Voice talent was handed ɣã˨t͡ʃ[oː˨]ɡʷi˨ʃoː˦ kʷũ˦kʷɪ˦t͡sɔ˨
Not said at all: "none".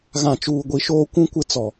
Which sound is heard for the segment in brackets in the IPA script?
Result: uː˨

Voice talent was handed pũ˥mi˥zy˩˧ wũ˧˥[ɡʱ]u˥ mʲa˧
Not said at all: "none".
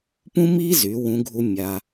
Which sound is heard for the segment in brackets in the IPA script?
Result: ɡʱ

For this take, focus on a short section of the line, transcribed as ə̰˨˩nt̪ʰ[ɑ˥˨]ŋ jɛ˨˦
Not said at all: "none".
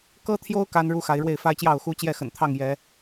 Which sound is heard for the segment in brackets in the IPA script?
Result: ɑ˥˨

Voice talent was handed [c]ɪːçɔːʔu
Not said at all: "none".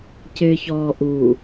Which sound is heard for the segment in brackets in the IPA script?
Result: c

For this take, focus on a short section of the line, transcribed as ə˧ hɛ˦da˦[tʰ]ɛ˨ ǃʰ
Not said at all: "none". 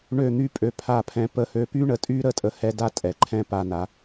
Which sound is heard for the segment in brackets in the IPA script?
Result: tʼ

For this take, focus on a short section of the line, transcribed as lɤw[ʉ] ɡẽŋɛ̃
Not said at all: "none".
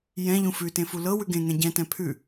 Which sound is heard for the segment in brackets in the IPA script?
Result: ʉ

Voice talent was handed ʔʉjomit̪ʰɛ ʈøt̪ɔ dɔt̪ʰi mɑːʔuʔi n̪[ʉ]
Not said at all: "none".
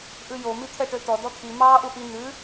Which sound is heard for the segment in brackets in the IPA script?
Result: ʉ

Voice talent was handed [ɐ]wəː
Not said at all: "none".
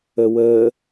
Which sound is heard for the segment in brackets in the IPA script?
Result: ə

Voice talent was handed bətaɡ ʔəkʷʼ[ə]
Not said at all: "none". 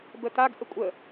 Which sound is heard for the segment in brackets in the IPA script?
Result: ə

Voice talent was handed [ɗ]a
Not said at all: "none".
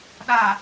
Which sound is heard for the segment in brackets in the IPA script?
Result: ɗ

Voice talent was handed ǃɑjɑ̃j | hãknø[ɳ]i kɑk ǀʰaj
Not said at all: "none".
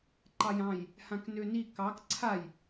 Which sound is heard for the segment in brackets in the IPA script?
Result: n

